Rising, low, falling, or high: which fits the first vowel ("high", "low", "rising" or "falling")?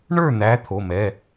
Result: falling